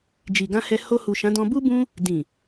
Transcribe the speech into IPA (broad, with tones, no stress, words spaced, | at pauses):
d͡ʒi˨ɡã˧hɛ˧ ho˧hu˨ ʃã˨˦dɔ̃˧ bu˦ bũ˦ | dĩ˨